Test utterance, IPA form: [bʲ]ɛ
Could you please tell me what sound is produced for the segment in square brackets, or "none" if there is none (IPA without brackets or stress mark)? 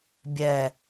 bʲ